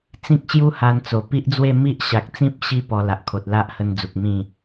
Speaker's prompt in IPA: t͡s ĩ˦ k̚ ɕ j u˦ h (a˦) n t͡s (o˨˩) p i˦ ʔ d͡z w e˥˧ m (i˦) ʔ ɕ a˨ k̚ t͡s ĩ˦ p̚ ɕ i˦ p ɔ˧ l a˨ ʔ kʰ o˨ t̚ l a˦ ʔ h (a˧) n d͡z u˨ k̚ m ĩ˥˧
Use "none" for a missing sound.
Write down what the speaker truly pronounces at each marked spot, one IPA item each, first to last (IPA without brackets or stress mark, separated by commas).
a˧, o˨˩, i˦, ə˧